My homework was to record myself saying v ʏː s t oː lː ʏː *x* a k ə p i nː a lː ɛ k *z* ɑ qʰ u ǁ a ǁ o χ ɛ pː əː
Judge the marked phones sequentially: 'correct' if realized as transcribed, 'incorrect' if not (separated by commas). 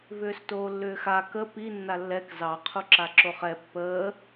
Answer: correct, correct